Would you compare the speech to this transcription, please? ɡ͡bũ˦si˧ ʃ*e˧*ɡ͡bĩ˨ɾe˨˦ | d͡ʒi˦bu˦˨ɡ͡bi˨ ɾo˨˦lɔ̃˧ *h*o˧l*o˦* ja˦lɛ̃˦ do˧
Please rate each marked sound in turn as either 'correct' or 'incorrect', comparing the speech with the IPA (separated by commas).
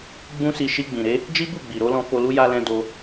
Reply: incorrect, incorrect, incorrect